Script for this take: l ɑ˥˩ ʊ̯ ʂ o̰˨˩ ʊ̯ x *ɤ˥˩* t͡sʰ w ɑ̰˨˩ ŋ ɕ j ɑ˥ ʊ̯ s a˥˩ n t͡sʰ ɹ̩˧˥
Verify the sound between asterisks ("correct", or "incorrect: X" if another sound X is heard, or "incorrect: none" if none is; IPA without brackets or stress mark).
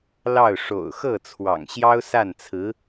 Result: correct